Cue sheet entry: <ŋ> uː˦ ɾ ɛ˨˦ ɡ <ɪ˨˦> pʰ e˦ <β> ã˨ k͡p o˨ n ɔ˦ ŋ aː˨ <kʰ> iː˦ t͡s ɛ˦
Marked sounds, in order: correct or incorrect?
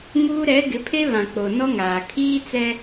correct, correct, correct, correct

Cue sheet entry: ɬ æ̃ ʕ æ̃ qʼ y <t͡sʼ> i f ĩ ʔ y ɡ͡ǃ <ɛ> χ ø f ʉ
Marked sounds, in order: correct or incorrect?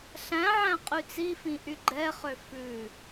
incorrect, correct

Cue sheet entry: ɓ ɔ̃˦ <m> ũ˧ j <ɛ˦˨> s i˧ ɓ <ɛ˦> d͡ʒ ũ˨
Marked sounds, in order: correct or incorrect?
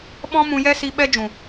correct, incorrect, correct

